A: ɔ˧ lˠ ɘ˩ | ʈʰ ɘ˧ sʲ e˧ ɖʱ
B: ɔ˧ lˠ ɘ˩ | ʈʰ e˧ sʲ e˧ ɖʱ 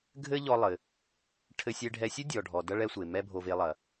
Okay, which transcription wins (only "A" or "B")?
A